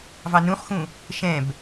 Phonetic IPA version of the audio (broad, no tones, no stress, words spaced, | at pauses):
vɑnũχxũ | ʃɛ̃b